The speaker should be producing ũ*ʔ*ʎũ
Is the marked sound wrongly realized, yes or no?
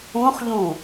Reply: yes